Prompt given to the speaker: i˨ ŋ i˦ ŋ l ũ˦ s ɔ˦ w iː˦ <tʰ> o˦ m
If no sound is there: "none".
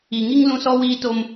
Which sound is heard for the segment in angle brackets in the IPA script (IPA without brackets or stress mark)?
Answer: t